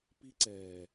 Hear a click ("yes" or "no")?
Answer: yes